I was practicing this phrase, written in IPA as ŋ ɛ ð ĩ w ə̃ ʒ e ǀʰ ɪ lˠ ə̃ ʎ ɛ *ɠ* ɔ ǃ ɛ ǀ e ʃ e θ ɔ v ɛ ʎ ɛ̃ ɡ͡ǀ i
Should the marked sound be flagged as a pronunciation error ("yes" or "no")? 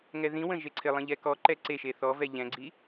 yes